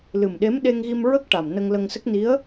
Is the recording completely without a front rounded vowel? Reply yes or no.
yes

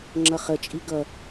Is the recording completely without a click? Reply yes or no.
no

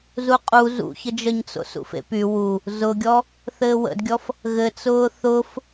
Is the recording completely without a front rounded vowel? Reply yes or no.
no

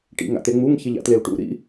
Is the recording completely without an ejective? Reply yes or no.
yes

